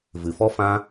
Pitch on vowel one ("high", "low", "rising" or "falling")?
low